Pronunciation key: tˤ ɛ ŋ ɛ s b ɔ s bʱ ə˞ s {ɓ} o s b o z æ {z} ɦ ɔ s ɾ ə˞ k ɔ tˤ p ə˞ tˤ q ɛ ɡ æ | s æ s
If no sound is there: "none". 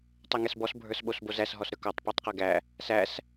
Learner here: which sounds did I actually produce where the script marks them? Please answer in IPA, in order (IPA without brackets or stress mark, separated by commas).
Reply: ɓ, s